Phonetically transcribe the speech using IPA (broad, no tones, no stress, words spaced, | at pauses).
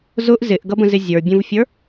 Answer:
zʊʔ zɪʔɡʌbə̃zɪ zʲə˞bʲũvfʲə˞